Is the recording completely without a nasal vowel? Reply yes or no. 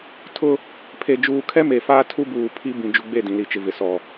no